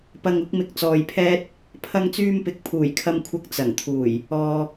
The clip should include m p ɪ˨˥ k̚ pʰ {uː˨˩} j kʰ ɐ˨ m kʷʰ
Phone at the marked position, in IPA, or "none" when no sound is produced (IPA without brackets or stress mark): uː˨˩